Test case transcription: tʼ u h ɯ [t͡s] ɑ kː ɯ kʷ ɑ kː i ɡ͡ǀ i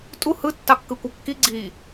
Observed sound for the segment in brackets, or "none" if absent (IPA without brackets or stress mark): tː